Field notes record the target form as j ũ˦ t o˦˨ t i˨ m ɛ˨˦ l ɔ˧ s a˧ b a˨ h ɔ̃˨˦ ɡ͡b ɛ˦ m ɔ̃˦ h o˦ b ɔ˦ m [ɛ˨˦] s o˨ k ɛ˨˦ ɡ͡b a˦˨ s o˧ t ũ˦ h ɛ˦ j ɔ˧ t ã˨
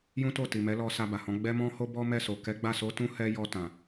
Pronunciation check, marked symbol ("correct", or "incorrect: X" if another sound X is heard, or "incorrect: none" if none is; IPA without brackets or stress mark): incorrect: ɛ˦˨